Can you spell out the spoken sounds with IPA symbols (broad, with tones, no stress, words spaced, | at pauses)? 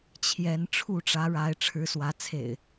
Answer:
t͡ɕʰjɛ˨˦n ʈ͡ʂʰu˥˨ʈ͡ʂä˨˦ɻa˨˦ɪ̯ ʈ͡ʂʰɻ̩˨˦swä˨˦t͡sʰḛ˨˩ɪ̯